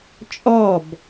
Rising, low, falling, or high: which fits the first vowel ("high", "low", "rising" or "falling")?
falling